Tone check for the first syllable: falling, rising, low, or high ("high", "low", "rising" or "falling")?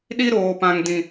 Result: high